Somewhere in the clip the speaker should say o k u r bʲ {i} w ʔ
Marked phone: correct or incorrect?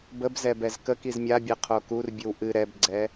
incorrect: ɨ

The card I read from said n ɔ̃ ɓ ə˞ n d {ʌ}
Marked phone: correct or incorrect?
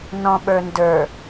incorrect: ə˞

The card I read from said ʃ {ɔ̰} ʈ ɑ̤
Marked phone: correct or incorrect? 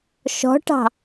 incorrect: ɔ̤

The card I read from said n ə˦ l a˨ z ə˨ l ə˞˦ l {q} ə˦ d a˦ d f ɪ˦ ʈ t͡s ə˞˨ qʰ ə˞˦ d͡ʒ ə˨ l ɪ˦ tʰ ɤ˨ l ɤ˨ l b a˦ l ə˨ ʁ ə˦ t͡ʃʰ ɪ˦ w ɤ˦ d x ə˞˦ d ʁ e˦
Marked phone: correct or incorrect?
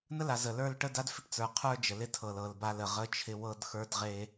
incorrect: ʈ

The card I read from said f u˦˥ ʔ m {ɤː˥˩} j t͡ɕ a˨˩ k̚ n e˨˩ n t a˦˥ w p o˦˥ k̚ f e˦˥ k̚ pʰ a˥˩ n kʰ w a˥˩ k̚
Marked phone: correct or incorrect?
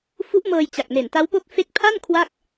incorrect: ɤː˧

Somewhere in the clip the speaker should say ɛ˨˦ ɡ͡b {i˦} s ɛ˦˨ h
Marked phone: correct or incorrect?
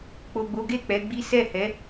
correct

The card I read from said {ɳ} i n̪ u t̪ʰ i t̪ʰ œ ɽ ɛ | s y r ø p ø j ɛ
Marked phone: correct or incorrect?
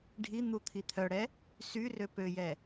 incorrect: ɖʱ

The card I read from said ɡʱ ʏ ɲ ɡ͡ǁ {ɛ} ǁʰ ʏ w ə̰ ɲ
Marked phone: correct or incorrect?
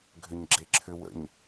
incorrect: e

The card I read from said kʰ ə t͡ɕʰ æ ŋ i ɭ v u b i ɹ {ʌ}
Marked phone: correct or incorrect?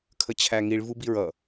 correct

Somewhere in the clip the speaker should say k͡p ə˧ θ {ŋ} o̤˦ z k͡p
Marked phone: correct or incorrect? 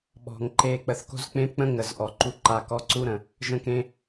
incorrect: k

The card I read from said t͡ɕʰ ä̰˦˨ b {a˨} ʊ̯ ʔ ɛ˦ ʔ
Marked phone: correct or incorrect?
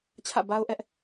incorrect: a˦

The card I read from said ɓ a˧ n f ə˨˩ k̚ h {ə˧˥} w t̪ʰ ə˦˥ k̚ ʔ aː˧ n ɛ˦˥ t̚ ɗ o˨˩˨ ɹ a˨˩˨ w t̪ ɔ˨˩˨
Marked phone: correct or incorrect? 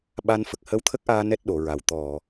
correct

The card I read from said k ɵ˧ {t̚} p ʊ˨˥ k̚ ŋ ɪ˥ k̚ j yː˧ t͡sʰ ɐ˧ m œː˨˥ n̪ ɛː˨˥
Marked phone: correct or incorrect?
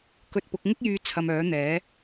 correct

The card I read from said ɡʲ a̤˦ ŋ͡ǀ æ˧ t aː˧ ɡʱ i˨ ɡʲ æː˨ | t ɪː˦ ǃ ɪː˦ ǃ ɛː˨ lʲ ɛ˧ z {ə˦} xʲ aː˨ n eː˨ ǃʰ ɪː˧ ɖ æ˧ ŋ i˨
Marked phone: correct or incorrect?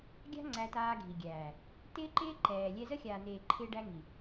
correct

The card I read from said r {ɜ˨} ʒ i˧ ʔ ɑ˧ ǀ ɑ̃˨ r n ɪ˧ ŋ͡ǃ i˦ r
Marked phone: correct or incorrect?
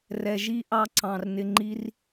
incorrect: ɛ˨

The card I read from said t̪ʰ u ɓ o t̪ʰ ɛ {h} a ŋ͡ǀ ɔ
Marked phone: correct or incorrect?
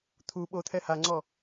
correct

